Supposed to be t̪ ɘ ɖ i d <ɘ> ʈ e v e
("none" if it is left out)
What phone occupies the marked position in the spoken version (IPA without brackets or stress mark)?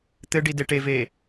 e